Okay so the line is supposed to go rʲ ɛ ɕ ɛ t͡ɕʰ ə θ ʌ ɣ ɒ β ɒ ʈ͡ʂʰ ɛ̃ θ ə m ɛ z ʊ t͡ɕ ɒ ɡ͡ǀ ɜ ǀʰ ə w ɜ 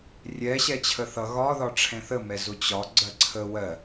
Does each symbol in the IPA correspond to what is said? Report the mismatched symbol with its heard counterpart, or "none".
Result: β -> ð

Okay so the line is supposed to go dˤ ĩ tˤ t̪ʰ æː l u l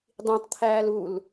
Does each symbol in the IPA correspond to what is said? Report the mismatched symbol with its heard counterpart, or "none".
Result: none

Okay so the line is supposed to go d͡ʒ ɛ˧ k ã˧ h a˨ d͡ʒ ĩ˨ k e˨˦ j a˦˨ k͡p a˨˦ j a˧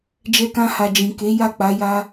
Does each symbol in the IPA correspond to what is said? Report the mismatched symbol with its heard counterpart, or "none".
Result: none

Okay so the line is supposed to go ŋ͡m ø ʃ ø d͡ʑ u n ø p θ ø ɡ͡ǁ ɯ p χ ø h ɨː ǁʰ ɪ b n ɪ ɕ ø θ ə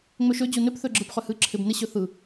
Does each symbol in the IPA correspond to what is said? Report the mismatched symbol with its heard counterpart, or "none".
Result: ə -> ɯ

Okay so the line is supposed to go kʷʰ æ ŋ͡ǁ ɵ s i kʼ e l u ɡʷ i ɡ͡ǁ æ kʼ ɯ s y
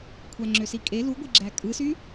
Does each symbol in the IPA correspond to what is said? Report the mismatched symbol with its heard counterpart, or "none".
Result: ɵ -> ø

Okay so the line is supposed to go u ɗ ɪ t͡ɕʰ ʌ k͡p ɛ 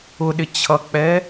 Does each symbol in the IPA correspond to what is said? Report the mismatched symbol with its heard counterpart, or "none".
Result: u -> ʊ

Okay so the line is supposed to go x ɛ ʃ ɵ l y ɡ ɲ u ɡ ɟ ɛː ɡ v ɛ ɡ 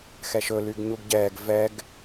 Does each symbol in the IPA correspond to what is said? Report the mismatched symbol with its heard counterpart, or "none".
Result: none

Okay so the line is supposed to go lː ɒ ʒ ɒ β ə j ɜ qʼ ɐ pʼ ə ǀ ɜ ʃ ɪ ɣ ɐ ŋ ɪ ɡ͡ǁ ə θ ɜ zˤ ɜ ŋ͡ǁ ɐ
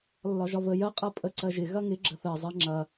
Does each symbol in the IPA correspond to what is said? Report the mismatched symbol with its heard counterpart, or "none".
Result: ʃ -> ʒ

